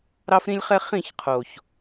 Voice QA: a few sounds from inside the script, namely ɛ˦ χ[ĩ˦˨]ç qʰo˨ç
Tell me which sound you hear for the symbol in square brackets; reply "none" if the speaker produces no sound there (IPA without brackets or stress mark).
ĩ˦˨